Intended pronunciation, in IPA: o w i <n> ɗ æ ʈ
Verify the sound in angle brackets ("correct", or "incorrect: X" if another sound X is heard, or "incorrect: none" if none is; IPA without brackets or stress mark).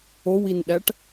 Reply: correct